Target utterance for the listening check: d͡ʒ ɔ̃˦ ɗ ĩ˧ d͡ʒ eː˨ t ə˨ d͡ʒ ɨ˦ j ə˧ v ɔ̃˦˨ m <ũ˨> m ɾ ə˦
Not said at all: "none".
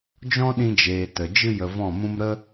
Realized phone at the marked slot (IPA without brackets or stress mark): ũ˦